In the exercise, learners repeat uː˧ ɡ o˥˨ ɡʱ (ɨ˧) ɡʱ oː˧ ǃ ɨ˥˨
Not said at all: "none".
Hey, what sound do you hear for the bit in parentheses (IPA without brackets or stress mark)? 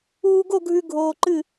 ʉ˧